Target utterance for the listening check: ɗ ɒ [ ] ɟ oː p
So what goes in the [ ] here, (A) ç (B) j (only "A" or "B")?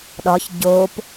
A